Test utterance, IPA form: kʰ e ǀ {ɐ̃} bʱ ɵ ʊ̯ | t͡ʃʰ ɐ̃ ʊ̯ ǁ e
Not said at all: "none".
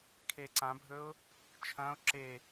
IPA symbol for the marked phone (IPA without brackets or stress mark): ã